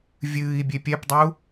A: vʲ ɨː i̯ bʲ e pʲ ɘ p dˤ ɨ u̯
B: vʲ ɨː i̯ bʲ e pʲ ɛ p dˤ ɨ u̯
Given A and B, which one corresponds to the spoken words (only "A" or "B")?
B